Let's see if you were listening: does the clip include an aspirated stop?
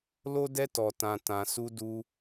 no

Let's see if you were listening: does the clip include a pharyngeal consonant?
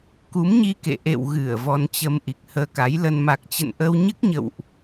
no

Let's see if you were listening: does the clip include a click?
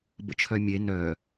no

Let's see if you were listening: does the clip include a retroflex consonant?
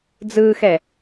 no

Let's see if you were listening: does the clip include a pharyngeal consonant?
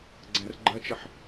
yes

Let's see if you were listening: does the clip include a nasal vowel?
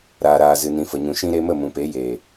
yes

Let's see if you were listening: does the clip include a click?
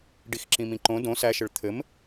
yes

